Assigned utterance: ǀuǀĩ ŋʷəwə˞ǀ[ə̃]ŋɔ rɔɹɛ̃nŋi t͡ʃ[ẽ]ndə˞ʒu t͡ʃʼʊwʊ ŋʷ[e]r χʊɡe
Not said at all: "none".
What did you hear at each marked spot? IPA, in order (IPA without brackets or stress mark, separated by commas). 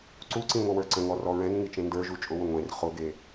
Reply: ə̃, ẽ, ẽ